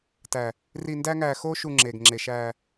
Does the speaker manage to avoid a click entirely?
no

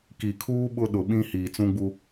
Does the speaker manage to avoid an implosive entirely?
no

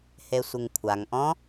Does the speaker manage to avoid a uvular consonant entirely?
yes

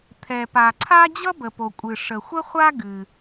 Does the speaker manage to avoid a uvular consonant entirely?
no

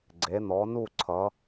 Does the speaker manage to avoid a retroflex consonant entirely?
yes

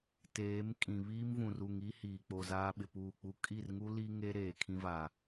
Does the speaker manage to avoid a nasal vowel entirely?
no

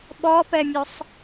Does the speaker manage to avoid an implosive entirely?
no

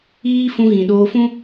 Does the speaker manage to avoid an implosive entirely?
no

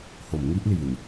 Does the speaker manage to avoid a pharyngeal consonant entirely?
yes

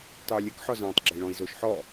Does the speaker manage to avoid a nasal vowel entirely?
no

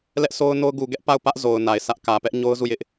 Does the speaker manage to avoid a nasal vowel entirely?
yes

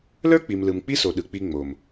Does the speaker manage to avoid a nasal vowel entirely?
yes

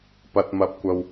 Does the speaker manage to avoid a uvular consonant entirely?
yes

